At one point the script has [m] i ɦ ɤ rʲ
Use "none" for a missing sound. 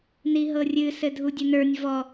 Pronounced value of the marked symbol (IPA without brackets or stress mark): n